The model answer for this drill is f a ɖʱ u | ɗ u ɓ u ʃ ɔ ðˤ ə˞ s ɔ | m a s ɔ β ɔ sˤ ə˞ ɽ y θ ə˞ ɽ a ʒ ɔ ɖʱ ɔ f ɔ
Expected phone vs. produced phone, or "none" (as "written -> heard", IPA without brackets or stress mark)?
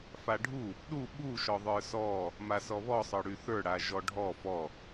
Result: none